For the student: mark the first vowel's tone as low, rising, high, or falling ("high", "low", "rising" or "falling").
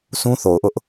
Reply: high